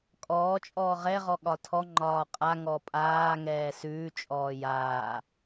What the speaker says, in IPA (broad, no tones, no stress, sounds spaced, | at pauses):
kʼ ɔː t͡ʃʼ ɔː ʁ ɛ ʁ ɔ ɠ ɒ tʰ ɔ ŋ͡ǃ ɒː qʼ a ŋ ɔ pʼ aː ŋ ɛː s ʉː t͡ʃʼ ɔː j aː